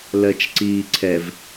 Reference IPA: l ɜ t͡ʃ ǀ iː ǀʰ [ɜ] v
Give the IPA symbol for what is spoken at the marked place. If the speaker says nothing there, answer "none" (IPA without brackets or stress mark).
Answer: ɛ